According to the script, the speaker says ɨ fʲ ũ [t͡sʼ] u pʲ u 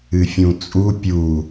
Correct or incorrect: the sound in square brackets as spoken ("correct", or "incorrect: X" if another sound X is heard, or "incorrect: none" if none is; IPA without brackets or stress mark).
correct